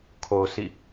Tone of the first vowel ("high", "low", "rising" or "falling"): low